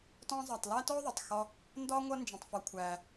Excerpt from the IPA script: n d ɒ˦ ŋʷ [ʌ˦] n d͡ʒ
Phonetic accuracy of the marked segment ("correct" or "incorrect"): correct